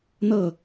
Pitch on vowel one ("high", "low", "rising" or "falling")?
falling